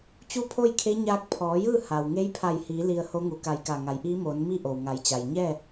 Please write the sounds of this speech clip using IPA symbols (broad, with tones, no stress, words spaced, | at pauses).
t͡ɕu˥˨pʰo˥˨jkʰe˧˥ ɲaː˧k̚pʰɔː˩˧jɯː˥˨ ha˩w ŋe˧˥jpʰa˧˩jhiː˩˧ li˧ə̯ho˧˥ŋu˩˧ ka˧jka˧˩ ŋa˩˧jʔiː˧˥moː˩˧n mi˥˨ ʔo˩wŋa˩˧jt͡ɕa˩j ɲɛː˥˨